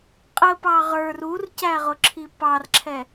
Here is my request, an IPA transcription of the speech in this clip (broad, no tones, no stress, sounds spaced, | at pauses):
qʼ ə p ɑ ʁ ə˞ r u r c æ ʁ ʊ ǁʰ i p ɑ r ǁʰ ɛ